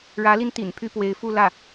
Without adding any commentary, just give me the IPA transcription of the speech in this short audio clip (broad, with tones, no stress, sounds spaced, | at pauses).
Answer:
ɻ ä˧˥ l i˧ n t̪ ḭ˨˩ n pʰ y˥˩ p w e˧˥ ɪ̯ f u˥˧ l ä˥˩